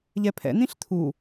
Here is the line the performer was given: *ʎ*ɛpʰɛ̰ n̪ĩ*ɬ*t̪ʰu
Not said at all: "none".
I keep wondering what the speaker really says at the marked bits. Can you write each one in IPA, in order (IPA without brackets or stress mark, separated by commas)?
ʎ, ɬ